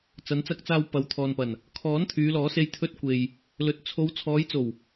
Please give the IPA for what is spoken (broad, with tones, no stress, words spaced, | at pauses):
t͡sɐ˨˧nt͡sɐ˧k̚t͡saː˧w pɐ˨˧wt̪ʰɔː˨npɐ˨˩n | kʰɔː˨˥n t̪ʰyː˨˧lɔː˨˥se˧j t̪ʰɵ˧t̚kʷe˨j | lɵ˨t̚t͡sʰo˨˧w t͡sʰɔː˨˧jt͡so˨˩w